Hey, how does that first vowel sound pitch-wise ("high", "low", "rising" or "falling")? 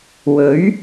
rising